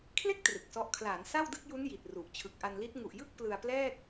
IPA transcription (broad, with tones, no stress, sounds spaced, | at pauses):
kʰ l e˥˩ k̚ t r ɯ˨˩ k̚ s ɔ˦˥ ʔ kʰ l aː˩˦ n s a˥˩ w d ɯ˥˩ k̚ j u˦˥ n j i˨˩ t̚ r u˨˩ ʔ t͡ɕʰ ɯ˨˩ k̚ ʔ a˧ n l i˦˥ t̚ ŋ u˨˩ ʔ j ɯ˥˩ k̚ p l ɯ˧ a̯ p l ɛː˥˩ k̚